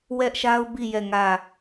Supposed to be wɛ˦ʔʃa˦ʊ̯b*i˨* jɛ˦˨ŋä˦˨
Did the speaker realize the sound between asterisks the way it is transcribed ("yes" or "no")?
no